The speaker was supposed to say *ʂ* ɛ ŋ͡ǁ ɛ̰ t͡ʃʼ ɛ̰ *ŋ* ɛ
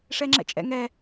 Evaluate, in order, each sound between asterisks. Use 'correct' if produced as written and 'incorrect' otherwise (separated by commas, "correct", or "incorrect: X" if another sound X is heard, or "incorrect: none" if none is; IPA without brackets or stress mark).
correct, correct